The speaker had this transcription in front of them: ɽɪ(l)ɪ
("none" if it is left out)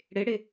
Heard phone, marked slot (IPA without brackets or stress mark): ɽ